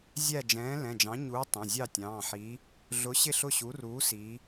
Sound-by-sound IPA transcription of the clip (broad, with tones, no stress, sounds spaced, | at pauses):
zʲ æ˥˨ d͡ʒ ɛ̃ː˨˥ l ɛ̃˩˧˩ d͡ʒ ɑ̃˨˥ ɲ uː˨˥ tˤ ɛ̃˩˧˩ zʲ ɑ˥˨ tʲ ɑ̃ː˩˧˩ ħ iː˨˥ | ɮ ʊ˨˥ ɕ ɪ˥˨ ɬ ʊ˥˨ ɕ u˨˥ r uː˨˥ s iː˨˥